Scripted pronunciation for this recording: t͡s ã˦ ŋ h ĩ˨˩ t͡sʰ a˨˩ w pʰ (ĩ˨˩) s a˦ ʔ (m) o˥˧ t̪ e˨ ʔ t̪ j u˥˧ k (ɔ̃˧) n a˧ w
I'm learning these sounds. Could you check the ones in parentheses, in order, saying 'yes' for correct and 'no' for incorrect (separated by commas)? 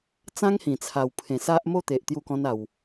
no, yes, no